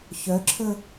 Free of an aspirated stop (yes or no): no